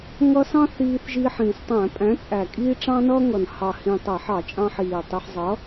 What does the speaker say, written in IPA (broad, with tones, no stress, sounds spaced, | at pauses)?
ŋ ʌ˧ s ɑ̃˥ θ iː˧ θ ʒ i˧ ħ ĩː˨˩ s tˤ æ̃˧˩˧ pʼ æ̃˨˥ t͡sʼ æ˨˩ kʼ iː˥ ʈ͡ʂ ɑ̃˥ n ʌː˥ ŋ ʌ˨˩ n h ɑ˨˩ h ĩ˨˩ tˤ æ˧˩˧ ħ ɑ˧˩˧ t͡ʃʼ ɑ̃˧ ħ iː˨˩ tˤ i˧ ħ zˤ ʌ˨˥